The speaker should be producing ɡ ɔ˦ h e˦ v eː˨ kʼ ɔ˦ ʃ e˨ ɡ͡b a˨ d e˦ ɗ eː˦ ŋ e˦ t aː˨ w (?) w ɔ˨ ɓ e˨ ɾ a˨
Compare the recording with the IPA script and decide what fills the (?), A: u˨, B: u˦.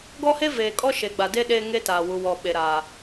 A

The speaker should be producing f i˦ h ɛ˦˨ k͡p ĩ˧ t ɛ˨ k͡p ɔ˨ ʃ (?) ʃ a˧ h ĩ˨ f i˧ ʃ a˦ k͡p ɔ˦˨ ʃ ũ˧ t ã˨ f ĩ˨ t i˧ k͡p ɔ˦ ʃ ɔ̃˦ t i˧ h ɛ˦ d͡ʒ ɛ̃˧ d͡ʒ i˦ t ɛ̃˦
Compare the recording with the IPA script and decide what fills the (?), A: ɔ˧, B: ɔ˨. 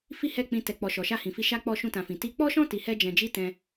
B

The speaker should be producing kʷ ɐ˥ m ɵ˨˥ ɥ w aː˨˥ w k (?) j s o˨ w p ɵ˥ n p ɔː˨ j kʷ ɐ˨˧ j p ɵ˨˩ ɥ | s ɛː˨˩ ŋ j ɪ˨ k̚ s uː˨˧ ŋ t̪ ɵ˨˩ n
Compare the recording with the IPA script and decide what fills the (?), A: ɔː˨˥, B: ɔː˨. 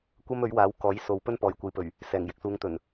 A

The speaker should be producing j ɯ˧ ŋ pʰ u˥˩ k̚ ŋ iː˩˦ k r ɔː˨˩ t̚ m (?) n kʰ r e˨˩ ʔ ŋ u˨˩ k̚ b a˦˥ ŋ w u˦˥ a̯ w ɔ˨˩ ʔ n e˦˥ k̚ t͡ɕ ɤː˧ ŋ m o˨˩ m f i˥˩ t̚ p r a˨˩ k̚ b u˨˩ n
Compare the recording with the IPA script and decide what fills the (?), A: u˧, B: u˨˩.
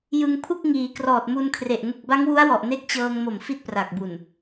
A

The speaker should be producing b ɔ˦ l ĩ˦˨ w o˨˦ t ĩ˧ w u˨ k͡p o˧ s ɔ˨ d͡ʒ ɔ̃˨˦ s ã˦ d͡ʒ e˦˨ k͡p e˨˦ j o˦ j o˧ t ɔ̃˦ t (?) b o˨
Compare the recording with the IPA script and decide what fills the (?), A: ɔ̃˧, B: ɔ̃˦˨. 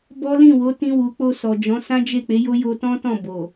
B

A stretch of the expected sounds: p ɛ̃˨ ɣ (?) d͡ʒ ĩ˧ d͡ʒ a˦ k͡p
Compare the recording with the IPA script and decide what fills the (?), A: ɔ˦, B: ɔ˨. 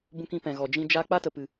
B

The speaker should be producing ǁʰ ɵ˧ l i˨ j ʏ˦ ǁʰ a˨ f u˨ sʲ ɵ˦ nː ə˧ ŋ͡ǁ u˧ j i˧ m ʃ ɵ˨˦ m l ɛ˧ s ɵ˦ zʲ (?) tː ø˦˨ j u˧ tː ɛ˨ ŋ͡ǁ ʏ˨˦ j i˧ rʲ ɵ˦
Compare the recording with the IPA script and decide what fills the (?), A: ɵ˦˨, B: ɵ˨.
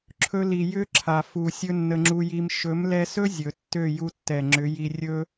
B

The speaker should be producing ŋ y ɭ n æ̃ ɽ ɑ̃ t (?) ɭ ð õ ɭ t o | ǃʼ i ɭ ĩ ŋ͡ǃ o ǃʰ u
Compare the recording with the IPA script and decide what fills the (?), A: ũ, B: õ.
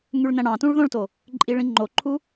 A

